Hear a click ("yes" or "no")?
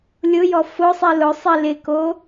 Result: no